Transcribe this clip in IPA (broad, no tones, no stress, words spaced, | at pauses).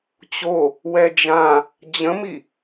t͡ɕo | wɛd͡ʒã | d͡ʑə̃mi